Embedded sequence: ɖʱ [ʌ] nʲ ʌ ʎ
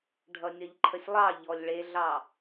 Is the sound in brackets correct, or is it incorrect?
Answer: correct